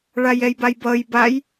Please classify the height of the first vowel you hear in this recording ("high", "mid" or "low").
low